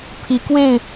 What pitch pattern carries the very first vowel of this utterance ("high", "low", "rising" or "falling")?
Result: rising